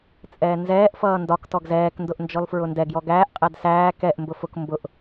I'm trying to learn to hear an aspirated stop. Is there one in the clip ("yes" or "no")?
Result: no